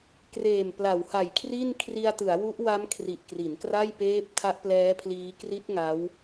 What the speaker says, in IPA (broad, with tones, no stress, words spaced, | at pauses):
kreː˨˩mpla˩˦wha˨˩j kʰri˥˩n kʰri˧a̯tɯ˩˦a̯wu˦˥ʔwa˦˥m kʰri˨˩ʔkri˩˦nkra˥˩jpeː˦˥p̚ tʰa˦˥ʔplɛː˦˥pʰliː˦˥ kri˦˥t̚ ŋa˦˥w